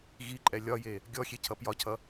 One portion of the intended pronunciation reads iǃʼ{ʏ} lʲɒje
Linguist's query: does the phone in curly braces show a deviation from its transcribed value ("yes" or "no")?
yes